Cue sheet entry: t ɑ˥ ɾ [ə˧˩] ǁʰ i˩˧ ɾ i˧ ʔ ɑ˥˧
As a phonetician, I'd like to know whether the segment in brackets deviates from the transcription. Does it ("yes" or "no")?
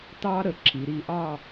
no